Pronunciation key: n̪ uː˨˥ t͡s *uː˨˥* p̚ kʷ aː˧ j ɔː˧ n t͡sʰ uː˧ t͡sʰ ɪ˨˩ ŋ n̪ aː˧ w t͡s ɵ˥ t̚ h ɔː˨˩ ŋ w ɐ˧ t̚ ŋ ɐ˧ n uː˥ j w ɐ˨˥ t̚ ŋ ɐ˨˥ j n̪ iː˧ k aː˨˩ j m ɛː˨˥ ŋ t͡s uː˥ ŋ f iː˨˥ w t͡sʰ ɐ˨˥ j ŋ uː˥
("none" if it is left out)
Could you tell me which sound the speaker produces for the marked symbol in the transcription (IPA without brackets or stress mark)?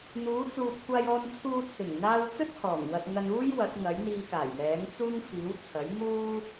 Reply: uː˧